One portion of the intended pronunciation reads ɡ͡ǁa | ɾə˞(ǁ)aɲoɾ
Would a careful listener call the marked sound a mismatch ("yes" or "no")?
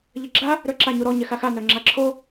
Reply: no